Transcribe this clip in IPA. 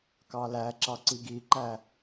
k ɑ l æ ǁ ɑ ǀ i ɡ i ǃ æ

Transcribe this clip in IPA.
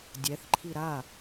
dʲ ɛ θ ǃʰ i ɾ a

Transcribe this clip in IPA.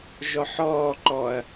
ʒ ɔ ħ ɔː ǃ ɔ ɐ̯

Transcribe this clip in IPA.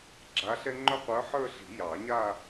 ɡ͡ǁ a˧˥ ɬ ɛ˥ ŋ͡ǃ œ˥ qʷ ə˞˧˥ ħ ə˞˥˧ ɬ i̤˨˩˦ j ɑ˨˩˦ ɲ a˥˧

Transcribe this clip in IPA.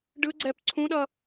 ɖ ɯ ɡ͡ǀ ɛ p ǀʰ ũ ɗ ʌ

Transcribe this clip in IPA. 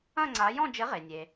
ɐ̃˥˧ ŋ͡ǀ a˨˦ j ɔ̃˥˧ d͡ʒ ɘ˨˦ ʁ e˩ nʲ e˩

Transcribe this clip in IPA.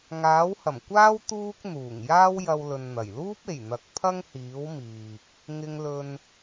ŋ aː˨˥ w h ɐ˨˩ m kʷ aː˥ w t̪ uː˥ k̚ n̪ uː˨˩ ŋ j aː˥ w j ɐ˧ w l ɵ˧ n n̪ ɐ˨˩ j l uː˥ p̚ e˨˩ j n̪ ɐ˨˥ k̚ pʰ ɐ˥ ŋ h iː˨˥ w m iː˨ k̚ | ŋ ɪ˧ ŋ l ɵ˨ n

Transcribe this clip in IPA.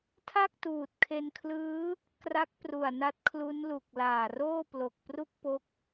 tʰ a˥˩ k̚ t uː˨˩ t̚ kʰ e˧ n kʰ l ɯː˦˥ | k r a˦˥ k̚ p r u˨˩ a̯ n a˦˥ t̚ kʰ l u˦˥ n l u˨˩ k̚ l aː˨˩ r oː˥˩ p l o˨˩ k̚ p r u˥˩ k̚ p o˦˥ k̚

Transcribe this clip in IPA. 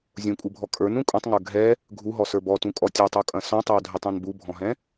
zʲ ũ kʼ u bʱ ɔ kʼ ə˞ n ũ kʼ ũ tˤ ŋ ə˞ ɡʱ ɛ | ɡʱ u ɦ ɔ s ə˞ b ɔ t ũ kʼ ɔ tʲ ɐ tˤ u kʼ ɐ̃ s ɔ̃ tˤ ɛ w dʱ ɛ tˤ ɔ̃ n b u bʱ ɔ̃ ɦ ɛ̃

